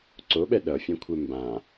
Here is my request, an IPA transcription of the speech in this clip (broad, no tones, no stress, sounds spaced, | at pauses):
ǀ o ɓ ɛ ɗ ʌ fʲ ɛ̃ kʷʰ ɛ m b ã